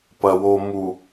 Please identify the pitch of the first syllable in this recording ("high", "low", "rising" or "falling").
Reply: low